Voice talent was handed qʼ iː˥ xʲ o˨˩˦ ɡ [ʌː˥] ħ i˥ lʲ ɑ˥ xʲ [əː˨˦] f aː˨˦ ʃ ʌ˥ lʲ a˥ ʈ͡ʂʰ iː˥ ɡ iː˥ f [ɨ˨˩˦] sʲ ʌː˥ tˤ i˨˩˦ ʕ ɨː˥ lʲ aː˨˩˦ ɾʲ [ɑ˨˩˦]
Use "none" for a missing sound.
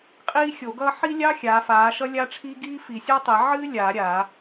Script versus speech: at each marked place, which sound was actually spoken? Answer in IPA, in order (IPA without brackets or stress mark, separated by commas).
ʌː˥, aː˨˦, i˨˩˦, a˨˩˦